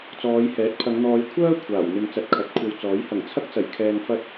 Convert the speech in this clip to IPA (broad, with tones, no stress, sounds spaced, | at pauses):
t͡s ɔː˨˧ j h ɛː˨˥ t̚ pʰ ɐ˨˧ ŋ n̪ ɔː˨˧ j kʷʰ œː˥ kʷʰ aː˨˩ w n̪ ɪ˧ ŋ t͡s ɐ˧ t̚ kʰ ɐ˨˥ t̚ kʷʰ ɐ˧ w t͡s ɔː˨˥ j h ɐ˨˩ ŋ t͡sʰ ɐ˥ k̚ t͡s ɐ˨˩ j kʰ ɛː˧ ŋ f ɐ˥ t̚